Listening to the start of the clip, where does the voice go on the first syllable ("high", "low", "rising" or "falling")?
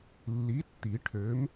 rising